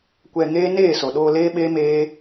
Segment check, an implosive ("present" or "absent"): present